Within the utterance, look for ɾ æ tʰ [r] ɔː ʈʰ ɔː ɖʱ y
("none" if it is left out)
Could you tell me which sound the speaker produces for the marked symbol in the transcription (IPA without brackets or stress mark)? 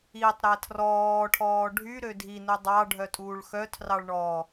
r